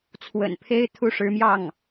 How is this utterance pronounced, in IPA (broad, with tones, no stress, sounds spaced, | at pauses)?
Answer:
t͡sʰ w ə̰˨˩ n pʰ e˥ ɪ̯ t̪ʰ u˥˩ ʂ ɻ̩˧˥ m j ɑ˥˩ ŋ